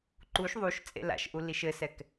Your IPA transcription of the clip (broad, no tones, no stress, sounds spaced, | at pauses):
ǃ u ʃ ðˤ u ʃ t͡sʼ ḛ l a̰ ʃ ʔ u l i ʃ ɘ s ɛ k